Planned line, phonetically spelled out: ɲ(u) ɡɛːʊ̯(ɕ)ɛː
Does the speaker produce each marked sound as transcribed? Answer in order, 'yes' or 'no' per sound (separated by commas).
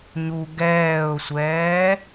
yes, no